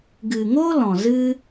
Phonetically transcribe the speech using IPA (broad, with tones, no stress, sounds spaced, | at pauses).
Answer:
ɡ ɨ˨ ŋ o˦ l ɔ̃˨ z ɨ˦